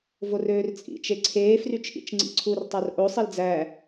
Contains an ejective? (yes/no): yes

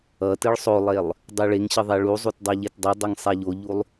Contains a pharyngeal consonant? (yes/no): no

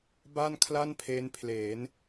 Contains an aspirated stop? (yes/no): yes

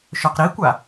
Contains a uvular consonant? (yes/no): yes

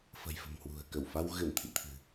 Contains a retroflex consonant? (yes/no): no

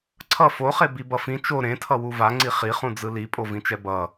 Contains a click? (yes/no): yes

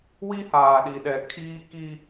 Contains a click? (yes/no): no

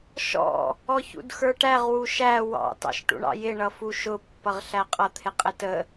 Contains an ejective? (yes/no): yes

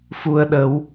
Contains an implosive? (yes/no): yes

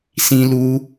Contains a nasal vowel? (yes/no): yes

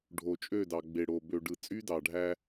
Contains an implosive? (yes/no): no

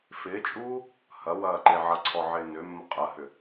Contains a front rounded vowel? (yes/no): yes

